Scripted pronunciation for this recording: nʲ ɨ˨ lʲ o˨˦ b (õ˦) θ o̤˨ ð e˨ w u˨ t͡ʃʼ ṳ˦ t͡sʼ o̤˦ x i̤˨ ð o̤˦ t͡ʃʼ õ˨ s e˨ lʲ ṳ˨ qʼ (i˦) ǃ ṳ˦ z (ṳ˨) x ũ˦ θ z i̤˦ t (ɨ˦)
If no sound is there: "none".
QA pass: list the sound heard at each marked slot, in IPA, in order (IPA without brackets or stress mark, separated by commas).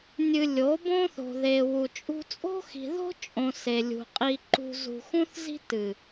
õ˦, i˦, ṳ˨, ɨ˨